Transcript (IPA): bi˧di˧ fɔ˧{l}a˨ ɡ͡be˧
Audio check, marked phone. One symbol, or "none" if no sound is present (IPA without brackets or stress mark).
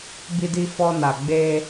n